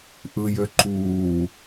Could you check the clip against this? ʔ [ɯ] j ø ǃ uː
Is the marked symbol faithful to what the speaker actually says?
yes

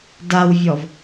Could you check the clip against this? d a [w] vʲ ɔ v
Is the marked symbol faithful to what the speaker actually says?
yes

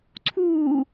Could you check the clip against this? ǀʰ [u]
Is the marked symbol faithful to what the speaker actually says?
no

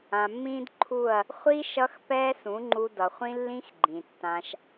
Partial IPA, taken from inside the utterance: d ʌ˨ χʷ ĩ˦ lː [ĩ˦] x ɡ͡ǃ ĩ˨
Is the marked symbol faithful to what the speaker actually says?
yes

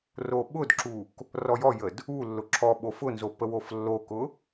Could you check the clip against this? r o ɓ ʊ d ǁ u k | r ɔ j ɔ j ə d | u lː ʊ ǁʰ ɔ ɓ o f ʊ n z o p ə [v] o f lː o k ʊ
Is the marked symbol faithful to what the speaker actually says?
no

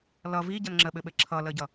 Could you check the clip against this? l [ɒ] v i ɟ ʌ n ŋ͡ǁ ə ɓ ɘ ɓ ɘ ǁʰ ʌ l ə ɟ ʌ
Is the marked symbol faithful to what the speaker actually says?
no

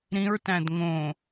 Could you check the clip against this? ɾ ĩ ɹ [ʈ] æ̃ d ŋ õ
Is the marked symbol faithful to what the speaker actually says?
no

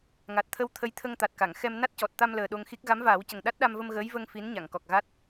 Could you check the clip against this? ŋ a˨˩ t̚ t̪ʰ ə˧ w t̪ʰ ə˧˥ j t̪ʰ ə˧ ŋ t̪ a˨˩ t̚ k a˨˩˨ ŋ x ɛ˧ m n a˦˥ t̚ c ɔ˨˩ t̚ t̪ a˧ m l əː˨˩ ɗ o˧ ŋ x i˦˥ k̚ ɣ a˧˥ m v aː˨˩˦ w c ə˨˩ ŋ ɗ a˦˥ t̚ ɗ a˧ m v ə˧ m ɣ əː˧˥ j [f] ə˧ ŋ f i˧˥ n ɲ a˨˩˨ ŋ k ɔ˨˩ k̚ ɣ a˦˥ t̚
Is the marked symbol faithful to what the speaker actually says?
no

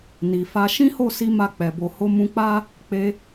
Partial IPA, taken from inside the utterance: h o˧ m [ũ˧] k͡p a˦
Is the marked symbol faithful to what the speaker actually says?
yes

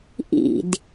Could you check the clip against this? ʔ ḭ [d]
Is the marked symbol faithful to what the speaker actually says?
yes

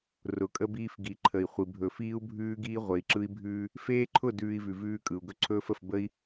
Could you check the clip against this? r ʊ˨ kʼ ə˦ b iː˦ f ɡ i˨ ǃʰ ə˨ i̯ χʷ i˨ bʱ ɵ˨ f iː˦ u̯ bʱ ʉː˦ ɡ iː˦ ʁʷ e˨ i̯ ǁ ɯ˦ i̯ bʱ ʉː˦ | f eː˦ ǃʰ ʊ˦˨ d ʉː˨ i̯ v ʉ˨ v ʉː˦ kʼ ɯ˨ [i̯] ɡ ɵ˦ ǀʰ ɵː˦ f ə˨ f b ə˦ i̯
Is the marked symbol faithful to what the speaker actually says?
no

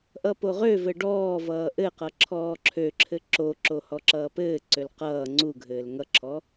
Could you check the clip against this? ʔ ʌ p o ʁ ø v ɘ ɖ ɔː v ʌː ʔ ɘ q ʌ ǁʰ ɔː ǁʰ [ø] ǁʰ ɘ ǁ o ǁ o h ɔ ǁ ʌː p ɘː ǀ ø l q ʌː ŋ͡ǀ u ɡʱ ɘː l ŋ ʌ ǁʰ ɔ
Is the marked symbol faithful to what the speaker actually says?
yes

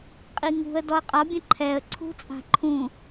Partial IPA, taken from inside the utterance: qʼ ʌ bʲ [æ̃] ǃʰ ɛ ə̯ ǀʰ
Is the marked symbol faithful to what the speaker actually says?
no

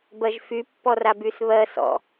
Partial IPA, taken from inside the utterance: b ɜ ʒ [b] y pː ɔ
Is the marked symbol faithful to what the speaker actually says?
no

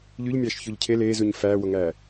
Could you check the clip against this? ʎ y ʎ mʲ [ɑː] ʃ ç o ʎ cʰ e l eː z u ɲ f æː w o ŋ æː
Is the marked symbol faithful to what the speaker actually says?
yes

